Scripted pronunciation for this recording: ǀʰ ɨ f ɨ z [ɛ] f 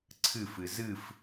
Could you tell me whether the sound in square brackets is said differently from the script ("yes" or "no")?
yes